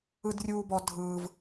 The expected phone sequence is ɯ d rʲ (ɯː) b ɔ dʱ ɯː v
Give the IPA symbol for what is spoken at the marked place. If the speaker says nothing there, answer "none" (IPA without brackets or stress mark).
uː